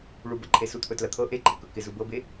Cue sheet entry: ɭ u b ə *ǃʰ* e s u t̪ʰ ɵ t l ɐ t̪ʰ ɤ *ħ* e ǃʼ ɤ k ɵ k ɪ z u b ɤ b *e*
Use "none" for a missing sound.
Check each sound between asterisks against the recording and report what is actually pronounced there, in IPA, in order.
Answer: ǃʰ, ʔ, e

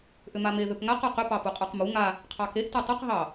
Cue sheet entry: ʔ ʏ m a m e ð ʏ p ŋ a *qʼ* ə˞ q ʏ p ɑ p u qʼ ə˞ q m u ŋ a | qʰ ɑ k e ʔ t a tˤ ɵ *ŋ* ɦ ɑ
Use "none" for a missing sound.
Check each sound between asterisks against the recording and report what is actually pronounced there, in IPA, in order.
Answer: q, q

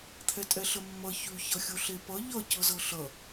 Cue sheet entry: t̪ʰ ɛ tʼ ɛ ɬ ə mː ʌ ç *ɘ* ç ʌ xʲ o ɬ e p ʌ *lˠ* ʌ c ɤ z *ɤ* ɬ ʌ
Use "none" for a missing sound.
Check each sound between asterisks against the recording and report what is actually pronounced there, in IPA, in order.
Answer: ʉ, ʎ, ɤ

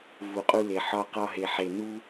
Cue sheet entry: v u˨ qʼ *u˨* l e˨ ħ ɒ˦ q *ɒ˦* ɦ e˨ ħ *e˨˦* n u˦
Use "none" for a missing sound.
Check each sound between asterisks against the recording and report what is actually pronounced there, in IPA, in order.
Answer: u˦, ɒ˦, e˨

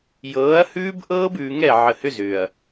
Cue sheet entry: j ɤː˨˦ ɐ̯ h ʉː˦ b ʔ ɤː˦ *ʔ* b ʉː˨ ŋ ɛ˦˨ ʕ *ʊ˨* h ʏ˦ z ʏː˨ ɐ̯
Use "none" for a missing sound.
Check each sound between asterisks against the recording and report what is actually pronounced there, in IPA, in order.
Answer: none, ə˨

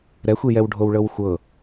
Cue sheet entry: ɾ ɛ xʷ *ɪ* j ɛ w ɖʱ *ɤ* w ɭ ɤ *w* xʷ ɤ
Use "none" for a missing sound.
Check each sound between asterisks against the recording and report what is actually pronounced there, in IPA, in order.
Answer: i, o, w

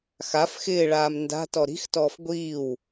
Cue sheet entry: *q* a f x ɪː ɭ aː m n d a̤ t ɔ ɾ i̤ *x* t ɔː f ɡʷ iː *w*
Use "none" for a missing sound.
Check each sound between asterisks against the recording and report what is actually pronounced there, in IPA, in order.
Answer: x, x, w

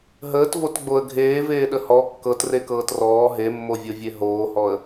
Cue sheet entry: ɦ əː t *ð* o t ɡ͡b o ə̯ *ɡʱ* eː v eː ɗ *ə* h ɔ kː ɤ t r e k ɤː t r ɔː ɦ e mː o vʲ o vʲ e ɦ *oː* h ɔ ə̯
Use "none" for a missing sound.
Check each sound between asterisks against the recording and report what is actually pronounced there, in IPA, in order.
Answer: v, ɡʱ, ə, oː

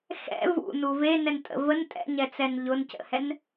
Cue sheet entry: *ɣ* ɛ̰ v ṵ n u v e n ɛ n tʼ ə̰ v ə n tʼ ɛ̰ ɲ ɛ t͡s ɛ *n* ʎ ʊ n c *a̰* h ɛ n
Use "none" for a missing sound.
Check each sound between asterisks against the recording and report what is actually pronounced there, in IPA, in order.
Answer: x, n, ə̰

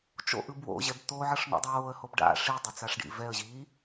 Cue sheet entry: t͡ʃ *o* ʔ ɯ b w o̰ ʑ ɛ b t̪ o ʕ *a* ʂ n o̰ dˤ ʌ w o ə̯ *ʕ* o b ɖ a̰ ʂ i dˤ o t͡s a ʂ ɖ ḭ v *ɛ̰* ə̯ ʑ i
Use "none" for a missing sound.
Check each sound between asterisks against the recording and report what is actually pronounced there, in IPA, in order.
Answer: o̰, ʌ, h, ɛ

